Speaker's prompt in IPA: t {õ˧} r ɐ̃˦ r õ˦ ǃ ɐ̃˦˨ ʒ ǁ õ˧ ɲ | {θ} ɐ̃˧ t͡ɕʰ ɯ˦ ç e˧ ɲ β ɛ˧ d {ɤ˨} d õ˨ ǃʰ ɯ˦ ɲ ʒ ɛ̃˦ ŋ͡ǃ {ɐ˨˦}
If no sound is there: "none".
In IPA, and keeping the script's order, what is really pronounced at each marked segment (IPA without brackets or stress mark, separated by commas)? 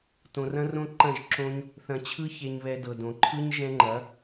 õ˧, θ, ɤ˨, ɐ˨˦